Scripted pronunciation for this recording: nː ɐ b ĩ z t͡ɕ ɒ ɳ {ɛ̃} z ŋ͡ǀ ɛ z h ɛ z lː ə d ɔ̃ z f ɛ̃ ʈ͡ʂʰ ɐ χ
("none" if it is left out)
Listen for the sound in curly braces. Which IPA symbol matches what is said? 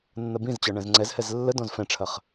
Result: ɛ̃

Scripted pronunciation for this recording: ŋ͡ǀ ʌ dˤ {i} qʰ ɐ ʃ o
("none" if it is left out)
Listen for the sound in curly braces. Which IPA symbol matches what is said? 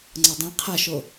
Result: ĩ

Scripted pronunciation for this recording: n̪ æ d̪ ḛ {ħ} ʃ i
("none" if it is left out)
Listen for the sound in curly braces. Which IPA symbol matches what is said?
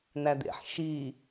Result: ħ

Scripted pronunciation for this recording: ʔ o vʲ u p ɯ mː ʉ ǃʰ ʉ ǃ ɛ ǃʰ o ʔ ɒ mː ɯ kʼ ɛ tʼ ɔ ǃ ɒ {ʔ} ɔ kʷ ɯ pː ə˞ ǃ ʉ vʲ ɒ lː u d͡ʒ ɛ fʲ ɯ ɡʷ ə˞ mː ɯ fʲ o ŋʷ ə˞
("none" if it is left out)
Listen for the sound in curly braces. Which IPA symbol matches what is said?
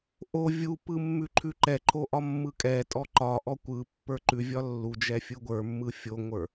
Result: ʔ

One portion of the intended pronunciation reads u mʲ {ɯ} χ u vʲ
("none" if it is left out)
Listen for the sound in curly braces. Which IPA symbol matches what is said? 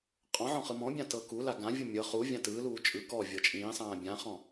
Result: ɤ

